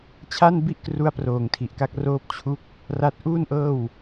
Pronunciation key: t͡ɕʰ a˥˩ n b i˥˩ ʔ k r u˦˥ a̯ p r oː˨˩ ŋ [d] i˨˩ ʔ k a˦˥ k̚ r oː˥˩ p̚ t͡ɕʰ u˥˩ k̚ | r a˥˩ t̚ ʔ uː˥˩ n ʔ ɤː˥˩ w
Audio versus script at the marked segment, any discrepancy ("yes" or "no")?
yes